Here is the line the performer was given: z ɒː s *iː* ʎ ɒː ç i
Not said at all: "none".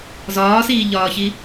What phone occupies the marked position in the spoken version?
iː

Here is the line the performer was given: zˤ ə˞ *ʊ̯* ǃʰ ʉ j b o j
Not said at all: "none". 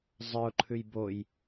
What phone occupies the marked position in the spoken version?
ʊ̯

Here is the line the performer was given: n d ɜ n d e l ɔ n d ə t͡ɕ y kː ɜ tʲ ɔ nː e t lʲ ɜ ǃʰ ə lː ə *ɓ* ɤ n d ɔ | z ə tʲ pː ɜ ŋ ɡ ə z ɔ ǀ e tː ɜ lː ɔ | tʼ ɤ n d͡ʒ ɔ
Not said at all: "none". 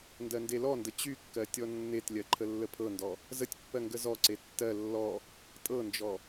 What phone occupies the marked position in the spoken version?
pʰ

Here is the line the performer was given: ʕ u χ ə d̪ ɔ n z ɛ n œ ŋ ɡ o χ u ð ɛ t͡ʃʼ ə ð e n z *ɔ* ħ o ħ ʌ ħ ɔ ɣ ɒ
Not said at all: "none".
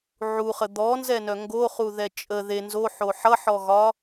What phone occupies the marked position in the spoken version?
o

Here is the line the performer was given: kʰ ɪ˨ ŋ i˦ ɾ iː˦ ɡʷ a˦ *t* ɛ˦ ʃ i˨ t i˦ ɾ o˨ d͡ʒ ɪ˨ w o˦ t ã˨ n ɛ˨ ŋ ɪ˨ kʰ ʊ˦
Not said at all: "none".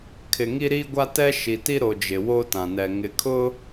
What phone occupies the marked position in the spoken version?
t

